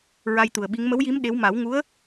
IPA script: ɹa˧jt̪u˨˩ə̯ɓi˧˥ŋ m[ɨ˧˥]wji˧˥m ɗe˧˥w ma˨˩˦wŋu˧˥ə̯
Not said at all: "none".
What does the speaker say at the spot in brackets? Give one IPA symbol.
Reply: ə˧˥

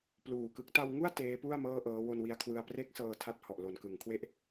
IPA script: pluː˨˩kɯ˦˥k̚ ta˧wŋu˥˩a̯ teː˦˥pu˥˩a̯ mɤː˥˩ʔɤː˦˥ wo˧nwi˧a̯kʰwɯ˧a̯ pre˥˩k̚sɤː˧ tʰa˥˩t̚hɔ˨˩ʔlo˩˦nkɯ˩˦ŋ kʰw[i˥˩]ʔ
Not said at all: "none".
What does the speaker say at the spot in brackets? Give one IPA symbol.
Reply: e˥˩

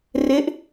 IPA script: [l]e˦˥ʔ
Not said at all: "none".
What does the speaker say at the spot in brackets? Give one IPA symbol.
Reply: r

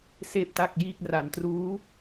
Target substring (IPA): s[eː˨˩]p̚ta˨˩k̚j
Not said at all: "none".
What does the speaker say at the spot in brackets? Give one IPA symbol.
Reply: eː˨˩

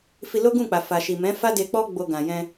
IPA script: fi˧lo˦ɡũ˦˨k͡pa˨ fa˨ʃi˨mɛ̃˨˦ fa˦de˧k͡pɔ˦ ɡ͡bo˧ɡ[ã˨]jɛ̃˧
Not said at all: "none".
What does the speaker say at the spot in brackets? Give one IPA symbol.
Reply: ã˨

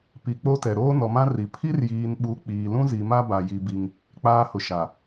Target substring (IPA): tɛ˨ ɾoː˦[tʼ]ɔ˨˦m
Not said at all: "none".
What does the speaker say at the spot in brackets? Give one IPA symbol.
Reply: n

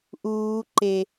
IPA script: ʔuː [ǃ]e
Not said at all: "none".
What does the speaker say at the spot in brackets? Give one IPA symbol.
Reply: ǃ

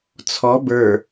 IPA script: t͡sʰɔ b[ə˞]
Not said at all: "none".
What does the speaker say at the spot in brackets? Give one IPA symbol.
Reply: ə˞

